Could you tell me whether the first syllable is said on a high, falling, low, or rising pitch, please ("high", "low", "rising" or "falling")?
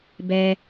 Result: low